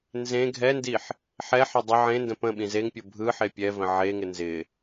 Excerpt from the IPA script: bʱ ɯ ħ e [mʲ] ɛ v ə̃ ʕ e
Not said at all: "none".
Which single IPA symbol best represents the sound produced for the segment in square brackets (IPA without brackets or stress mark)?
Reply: pʲ